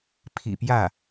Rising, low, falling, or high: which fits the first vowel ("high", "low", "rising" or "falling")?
low